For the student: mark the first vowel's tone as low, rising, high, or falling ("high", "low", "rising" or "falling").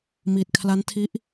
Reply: low